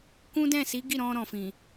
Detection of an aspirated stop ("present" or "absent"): absent